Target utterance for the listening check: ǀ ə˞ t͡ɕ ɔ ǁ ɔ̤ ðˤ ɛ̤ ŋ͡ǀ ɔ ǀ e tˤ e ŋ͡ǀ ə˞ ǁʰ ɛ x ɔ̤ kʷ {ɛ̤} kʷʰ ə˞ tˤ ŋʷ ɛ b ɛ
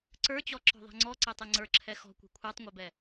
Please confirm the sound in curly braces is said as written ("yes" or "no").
yes